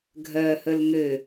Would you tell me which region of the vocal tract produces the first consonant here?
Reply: velum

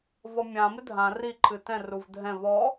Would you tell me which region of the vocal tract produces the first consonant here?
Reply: lips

